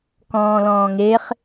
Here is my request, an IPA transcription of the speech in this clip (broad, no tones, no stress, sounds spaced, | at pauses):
k ɔ̃ː l ɔ̃ː ŋ e χ